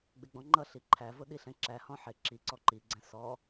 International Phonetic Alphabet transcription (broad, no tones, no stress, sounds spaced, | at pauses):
ɡ͡b ɪ ɡ͡b ɔ̃ ŋ͡ǃ ʌ ɬ i ǃʰ æ v ʊ ɗ i ɬ ɛ̃ ǁ æ h ɔ̃ ħ ɪ ǁ i ǀ ɔ ǃ i ɡ͡ǀ ɛ̃ s ɔ